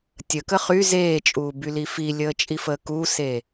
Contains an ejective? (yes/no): yes